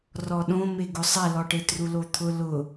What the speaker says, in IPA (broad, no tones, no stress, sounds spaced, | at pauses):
r ɔ ɗ õ m e ɡ ʊ sˤ ɛ l ɔ ʈ e t r u l o t̪ʰ ʊ l ʊ